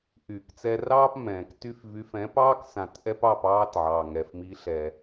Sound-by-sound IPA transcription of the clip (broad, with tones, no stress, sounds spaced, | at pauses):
ʔ yː˩ k t͡s ɛ˧ r ɑː˥ p m ɛ̃ː˩ k t y˧ f v y˩˥ f ɛ̃˩˥ p ɑː˥ k s ã˧ t ʔ ɛ˥ p ɑ˥˩ p ɑː˧ t ʕ ɑː˩ ŋ ɛ˩ f m i˩˥ ɬ ɛ˩